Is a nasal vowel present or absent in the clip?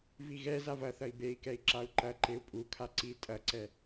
absent